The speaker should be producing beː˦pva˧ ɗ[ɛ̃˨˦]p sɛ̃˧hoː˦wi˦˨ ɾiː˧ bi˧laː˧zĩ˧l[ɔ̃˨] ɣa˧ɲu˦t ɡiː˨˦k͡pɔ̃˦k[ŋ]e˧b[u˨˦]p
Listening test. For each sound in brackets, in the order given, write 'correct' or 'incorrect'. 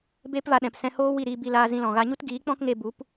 incorrect, correct, correct, correct

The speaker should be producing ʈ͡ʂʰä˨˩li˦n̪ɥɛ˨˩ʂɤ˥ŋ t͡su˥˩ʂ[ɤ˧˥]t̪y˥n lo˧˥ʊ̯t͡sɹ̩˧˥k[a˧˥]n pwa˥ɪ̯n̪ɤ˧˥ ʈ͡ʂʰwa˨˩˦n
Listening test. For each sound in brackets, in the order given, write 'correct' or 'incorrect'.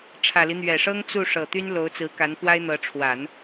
incorrect, correct

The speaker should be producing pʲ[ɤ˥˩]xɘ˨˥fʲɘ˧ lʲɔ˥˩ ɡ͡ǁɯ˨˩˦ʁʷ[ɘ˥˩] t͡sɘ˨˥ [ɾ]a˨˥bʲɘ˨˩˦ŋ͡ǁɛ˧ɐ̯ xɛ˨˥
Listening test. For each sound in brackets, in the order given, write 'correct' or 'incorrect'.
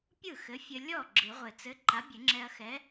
incorrect, incorrect, incorrect

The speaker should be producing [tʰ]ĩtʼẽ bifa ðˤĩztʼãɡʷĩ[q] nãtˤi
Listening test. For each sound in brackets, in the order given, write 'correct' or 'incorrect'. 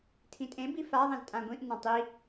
correct, incorrect

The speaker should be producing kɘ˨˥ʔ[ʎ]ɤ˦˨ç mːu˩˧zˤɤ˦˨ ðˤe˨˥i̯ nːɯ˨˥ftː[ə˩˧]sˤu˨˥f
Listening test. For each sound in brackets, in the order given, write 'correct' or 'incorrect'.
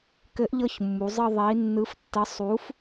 correct, incorrect

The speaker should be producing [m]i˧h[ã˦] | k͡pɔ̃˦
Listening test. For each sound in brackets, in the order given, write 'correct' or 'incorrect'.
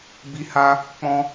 incorrect, incorrect

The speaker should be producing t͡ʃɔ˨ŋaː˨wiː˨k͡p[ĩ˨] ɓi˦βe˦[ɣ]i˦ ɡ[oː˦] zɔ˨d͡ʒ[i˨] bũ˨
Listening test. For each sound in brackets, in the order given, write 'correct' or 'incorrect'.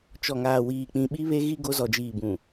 correct, correct, incorrect, incorrect

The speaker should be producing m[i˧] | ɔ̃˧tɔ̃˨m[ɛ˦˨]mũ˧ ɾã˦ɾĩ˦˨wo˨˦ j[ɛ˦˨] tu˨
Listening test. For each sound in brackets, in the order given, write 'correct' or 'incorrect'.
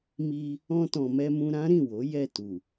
correct, incorrect, correct

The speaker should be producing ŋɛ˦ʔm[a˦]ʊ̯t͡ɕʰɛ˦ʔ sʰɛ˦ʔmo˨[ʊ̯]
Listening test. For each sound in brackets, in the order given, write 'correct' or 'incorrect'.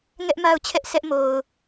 correct, correct

